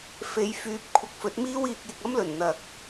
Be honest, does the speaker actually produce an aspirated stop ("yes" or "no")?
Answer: yes